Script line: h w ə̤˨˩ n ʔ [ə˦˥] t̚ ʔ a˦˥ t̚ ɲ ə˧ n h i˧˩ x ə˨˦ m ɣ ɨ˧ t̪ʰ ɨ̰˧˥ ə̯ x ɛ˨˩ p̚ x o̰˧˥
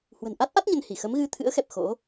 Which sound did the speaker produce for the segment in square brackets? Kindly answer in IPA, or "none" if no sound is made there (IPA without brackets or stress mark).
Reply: a˦˥